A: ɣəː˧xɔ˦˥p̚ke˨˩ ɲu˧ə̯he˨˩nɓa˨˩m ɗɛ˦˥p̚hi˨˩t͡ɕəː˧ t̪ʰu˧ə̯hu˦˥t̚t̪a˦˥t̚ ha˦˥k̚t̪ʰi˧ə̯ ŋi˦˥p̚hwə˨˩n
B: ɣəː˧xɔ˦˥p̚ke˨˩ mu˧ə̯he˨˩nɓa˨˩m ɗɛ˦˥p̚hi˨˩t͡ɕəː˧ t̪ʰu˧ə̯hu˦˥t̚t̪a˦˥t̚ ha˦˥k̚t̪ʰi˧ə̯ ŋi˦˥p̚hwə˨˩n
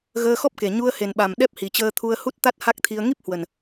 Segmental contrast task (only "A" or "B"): A